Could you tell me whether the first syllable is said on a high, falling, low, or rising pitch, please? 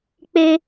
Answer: high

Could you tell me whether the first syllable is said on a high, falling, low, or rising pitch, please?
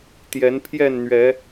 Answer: rising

